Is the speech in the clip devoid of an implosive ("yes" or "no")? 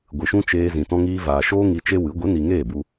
yes